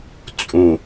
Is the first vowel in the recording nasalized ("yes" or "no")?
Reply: yes